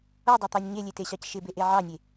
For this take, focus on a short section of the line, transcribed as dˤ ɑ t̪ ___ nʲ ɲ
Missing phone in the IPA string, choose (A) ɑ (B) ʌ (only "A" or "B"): A